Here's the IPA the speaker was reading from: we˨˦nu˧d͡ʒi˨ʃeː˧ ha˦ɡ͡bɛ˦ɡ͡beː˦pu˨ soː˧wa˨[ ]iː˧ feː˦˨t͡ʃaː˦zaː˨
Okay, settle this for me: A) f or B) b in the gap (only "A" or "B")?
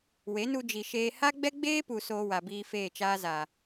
B